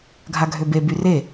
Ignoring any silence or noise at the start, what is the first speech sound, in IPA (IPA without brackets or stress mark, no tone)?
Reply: ɡʱ